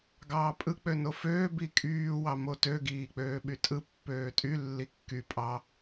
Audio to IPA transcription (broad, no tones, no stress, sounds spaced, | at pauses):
ɡ ɑː pʼ ɯ k͡p ø n o f øː b i kʼ yː w ɑ m o t ø ɡ iː k͡p øː ɓ y tʼ ɯ pː øː tʼ y lː i kː y pʼ ɑ